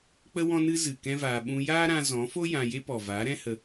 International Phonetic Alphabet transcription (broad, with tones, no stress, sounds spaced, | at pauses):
k͡p ə˦ w ɔ̃˦ n ɨ˦ z ɨ˨ k ɛ̃˦ v aː˧ ɓ ũ˧ j aː˦ ɾ ã˧ z ɔ̃˨˦ f o˦ j ã˧ j e˦ p ɔ˨ v aː˨˦ ɾ ɛ̃˦ h ə˧